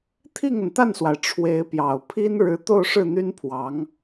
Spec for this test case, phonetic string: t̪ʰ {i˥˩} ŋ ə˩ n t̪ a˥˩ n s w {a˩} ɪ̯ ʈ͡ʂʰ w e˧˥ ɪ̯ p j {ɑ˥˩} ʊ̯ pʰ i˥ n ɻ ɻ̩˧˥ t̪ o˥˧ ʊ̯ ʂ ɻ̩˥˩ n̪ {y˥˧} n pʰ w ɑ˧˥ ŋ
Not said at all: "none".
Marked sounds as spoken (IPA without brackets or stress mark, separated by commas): i˥˩, a˩, ɑ˨˩, y˥